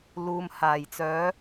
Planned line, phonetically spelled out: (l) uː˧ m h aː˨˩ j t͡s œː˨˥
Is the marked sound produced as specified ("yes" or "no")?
yes